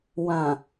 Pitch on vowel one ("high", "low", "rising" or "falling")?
low